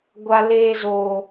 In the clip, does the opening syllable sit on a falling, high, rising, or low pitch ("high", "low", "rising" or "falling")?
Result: high